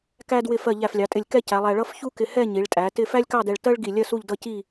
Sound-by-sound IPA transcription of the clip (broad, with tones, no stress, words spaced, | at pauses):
kæ˧ dwɪ˧˩fɜ˧˩ ʎæ˧˩flʲɑ˩˧tʼɪ˧˩lʲ kɛ˥˧cæ˩˧lˠæ˧ɭʌ˥f çu˥kɪ˧ hɛ˥˧ɲi˩˧ɭtʼæ˩˧ tɪ˥˧ fæ˥lʲkɑ˥˧dɛ˧ɭ tɜ˥ɭɡi˧˩lʲɜ˥˧ su˥˧ʎdʌ˥˧ci˥˧